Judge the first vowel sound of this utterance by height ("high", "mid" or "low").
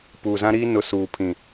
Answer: high